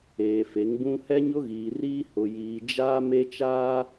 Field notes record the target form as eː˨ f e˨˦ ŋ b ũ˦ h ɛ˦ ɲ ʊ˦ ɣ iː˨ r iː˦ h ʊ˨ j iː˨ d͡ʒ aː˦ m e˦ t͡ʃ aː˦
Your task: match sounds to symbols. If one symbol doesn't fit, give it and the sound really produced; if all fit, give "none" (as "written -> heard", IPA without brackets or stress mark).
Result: none